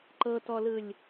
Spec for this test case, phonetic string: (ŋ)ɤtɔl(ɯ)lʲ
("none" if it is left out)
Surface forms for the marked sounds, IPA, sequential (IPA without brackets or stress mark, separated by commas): ǃ, ɯ